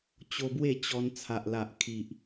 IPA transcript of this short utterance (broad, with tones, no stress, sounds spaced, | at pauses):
t͡ɕ o˧ b w e˥˧ t͡ɕ ɔ˧ n t͡sʰ a˨ ʔ l a˨ ʔ kʰ i˨ ʔ